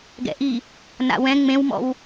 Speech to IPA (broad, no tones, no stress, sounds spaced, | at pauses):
ɡ ɛ̰ ʔ i | n a̰ w ɛ̃ ŋ͡m ẽ w m ɔ̰ w